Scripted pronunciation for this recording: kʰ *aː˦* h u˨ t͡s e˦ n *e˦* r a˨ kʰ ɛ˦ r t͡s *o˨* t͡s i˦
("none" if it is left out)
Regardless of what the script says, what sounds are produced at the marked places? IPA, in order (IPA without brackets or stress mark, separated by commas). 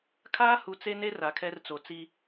aː˦, e˦, o˨